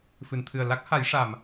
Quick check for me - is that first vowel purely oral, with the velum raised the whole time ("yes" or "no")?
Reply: yes